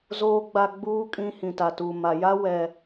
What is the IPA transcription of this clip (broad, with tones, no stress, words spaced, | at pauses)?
zoː˨ɡ͡ba˨ɡ͡buː˨kʼĩ˨ hĩ˨ta˨tuː˨ ma˨ja˦ wɛ˦